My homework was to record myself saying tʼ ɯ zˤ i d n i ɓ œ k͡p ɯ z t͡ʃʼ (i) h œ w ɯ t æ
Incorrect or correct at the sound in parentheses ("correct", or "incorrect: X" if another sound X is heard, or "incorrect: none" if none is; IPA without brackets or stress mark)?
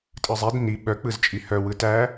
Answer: correct